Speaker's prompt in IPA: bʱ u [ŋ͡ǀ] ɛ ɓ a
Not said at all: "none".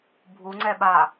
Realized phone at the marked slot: ŋ͡ǀ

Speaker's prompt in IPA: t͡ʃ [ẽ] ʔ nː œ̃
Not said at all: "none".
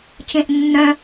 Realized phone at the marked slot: ẽ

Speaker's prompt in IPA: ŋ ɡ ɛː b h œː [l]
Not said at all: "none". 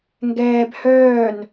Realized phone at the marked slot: n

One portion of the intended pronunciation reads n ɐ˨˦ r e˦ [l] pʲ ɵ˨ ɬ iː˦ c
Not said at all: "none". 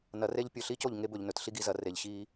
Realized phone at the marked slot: ʎ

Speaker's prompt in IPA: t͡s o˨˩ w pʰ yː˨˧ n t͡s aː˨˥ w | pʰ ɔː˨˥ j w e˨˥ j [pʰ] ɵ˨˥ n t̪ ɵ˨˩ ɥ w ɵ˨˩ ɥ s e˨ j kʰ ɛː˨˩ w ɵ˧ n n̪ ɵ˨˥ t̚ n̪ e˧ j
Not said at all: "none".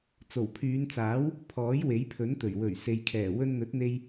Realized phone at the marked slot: pʰ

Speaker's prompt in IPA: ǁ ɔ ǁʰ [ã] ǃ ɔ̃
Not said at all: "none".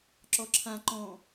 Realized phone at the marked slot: ã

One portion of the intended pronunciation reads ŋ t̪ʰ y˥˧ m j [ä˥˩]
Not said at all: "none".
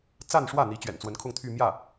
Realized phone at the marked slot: ä˥˩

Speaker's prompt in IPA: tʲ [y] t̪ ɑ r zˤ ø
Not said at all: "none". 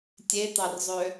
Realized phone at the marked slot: e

